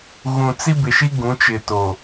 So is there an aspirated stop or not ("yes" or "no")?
no